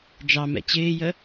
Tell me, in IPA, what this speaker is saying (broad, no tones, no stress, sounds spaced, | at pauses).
d͡ʒ ɑ m ɛ̰ t͡ɕ ɪː j ə